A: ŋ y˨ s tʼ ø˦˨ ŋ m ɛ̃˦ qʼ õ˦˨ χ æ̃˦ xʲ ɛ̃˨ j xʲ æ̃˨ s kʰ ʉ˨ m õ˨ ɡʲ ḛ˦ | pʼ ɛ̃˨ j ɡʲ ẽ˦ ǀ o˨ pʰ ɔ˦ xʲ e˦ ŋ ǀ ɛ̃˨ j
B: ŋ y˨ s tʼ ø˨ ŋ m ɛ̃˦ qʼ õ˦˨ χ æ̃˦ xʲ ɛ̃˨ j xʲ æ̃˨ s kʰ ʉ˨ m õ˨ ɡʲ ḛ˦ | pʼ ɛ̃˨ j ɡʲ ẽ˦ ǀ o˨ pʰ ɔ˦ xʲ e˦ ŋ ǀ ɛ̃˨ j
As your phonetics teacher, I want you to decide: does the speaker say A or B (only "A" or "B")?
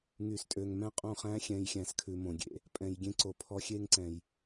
B